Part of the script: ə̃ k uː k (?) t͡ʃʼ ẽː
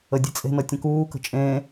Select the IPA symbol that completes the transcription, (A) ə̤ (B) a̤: A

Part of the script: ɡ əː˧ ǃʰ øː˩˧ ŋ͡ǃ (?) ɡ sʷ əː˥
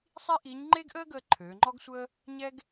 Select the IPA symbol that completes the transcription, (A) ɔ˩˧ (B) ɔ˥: B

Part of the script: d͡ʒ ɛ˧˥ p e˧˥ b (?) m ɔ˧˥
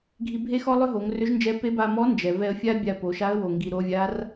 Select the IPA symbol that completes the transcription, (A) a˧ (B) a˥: A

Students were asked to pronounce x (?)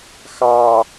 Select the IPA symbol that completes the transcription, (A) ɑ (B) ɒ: A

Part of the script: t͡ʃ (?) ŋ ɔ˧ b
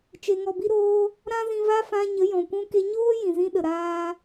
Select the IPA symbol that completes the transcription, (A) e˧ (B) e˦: A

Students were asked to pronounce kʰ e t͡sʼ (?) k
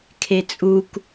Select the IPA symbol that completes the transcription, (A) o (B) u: B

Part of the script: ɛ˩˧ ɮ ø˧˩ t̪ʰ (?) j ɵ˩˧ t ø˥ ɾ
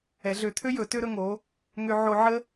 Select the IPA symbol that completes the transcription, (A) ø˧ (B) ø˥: B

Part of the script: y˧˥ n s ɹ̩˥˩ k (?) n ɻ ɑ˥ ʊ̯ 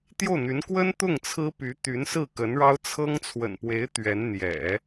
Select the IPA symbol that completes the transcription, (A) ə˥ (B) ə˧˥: B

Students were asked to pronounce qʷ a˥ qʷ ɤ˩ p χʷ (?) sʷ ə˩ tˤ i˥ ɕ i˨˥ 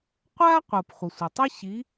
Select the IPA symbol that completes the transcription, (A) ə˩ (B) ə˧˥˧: A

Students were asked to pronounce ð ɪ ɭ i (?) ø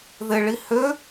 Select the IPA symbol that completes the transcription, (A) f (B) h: B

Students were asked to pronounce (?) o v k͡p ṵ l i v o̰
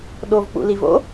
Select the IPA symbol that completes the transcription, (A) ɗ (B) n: A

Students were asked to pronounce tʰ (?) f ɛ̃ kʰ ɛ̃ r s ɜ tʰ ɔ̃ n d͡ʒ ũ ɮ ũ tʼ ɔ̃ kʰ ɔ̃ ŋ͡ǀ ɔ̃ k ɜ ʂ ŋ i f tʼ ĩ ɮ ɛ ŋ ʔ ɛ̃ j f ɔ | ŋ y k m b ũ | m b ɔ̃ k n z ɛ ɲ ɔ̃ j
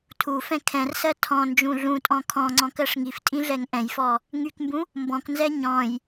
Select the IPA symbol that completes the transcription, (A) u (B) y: A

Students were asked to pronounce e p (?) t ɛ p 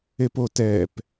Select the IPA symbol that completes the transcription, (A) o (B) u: A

